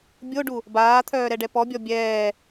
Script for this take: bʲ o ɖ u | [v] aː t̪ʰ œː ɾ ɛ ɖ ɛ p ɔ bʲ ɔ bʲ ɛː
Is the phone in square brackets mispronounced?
yes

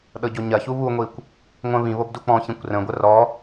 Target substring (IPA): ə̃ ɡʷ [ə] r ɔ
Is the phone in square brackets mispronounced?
no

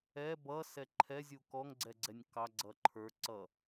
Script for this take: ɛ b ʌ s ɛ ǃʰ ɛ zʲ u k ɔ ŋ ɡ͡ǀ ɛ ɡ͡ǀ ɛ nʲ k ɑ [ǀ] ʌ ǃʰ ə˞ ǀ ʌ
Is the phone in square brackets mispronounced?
yes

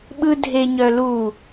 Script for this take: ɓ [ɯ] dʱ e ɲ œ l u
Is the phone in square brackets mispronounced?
no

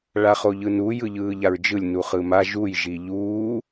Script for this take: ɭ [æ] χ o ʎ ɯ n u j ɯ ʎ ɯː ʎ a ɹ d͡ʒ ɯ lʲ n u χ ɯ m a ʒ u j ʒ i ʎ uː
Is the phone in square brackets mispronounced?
yes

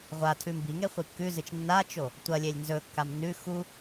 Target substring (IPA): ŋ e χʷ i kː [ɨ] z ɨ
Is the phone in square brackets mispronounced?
yes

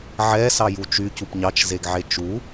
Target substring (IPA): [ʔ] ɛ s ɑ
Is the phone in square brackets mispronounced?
yes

